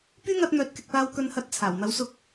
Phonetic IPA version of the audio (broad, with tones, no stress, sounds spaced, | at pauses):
p yː˥ ŋ ɐ˧ t̚ n̪ œː˨˥ t̚ k ɪ˨ k̚ p aː˧ w k ɵ˧ n h ɐ˧ t̚ t͡sʰ aː˨˩ w n̪ ɐ˨˥ w s ʊ˧ k̚